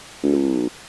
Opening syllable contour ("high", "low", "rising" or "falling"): low